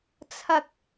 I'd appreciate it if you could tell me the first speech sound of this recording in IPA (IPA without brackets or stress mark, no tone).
t͡sʰ